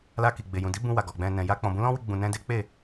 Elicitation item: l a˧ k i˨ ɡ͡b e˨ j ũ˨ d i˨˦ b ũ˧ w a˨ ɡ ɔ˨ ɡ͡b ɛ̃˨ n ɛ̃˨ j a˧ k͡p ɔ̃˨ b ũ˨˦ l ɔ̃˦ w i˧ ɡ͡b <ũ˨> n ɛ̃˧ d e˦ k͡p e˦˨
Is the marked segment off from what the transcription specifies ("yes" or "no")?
no